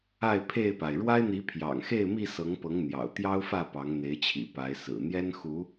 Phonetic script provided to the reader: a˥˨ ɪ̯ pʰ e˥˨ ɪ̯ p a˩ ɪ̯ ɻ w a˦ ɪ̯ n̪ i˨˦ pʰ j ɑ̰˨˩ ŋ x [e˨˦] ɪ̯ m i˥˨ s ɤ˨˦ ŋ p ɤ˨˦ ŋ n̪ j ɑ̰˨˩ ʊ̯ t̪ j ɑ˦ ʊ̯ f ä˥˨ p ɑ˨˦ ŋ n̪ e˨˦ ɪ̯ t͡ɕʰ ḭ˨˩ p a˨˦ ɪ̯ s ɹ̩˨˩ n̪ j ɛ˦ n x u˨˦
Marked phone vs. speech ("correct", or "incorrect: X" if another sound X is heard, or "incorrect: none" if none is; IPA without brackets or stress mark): incorrect: e˥˨